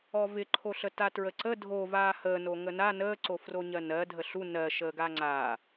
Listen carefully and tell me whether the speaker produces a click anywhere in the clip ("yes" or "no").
yes